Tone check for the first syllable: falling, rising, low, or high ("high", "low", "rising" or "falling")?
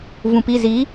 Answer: low